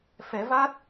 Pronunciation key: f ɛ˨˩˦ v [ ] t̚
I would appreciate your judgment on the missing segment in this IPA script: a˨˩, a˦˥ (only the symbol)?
a˦˥